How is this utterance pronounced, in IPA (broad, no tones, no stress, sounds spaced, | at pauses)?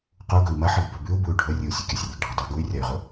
q u ɡ ɵ i̯ m ɐ ħ ɨ ɡ b ɵ b ʉ u̯ b u y̯ ɖʱ ɵ rʲ ɨ u̯ sʲ ɵ kʲ a sʲ rʲ ɨ ɡ ɖʱ ɐ dˤ u ɡ u y̯ rʲ a y̯ ʁ ɵ